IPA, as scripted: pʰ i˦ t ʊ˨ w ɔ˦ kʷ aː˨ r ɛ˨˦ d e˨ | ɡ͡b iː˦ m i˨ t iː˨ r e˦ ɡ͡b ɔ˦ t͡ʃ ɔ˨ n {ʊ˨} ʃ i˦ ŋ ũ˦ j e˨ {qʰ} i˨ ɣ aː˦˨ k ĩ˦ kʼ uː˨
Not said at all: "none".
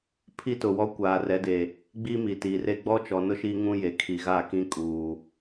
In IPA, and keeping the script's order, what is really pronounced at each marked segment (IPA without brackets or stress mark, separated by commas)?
ʊ˦, kʰ